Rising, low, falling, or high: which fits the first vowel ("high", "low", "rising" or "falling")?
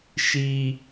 low